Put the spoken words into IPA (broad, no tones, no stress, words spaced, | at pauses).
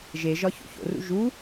ʒeʒɒ ço̰ço̰rṵ ʒu